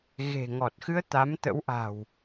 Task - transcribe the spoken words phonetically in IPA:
ɣ e̤˨˩ ŋ ɔ˨˩ t̚ x ɨ˧ ə̯ t̪ a˨˦ m t̪ ə̰˧˥ w ʔ a̤˨˩ w

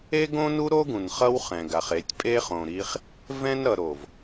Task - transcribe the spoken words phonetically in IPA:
e˦ ɡ õ˦ n u˦ ɾ o˦ ɡ ũ˨ n χ ʌ˦ w χ ɛ̃˨ ɡ a˨ χ e˨˦ tʲ pʼ e˦ χ õ˨ ɾ i˦ χ | v ɛ̃˦ n ɾ ʌ˨ ɾ o˨ v

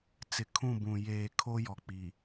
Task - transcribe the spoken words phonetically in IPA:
t͡s ɪ˨ kʰ ũ˦˨ b ũ˨ j eː˨ kʰ o˦ j ɔ˨ k͡p i˨

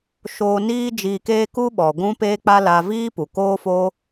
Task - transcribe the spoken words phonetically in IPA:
ʃ oː˧ n iː˦ d͡ʒ iː˧ k eː˦ k u˦ ɓ ɔ˨ ɡʷ ũ˦ p eː˦ k͡p a˦ l a˧ v iː˦ p u˨ k oː˦ f o˦

